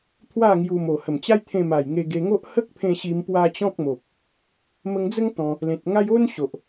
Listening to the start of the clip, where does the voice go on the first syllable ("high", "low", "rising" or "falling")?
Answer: falling